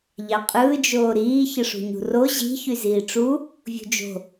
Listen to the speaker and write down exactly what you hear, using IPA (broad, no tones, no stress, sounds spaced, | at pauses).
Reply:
ʎ ɑ qʼ ɯː d͡ʒ oː ɾ iː ç ɯ ʂ ṳ ɲ ṳ r o ʑ i̤ ç y z iː ʈ͡ʂ u | vʲ ṳ d͡ʒ o̤